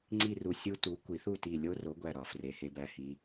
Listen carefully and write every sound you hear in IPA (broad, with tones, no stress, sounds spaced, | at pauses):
ŋ͡ǀ i˥˨ r u˧˩ sʲ u˦˥ t u˨˥ kʷ i˨˩˦ θ u˥˨ t i˧˩ lʲ o˦˥ r o˨˥ ɡʷ æ˧˩ ɾ ɒ˨˩˦ f r e˨˥ h e˦˥ b æ˥˨ h i˦˥